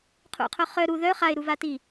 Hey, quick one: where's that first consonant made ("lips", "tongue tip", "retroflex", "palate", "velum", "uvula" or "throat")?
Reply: uvula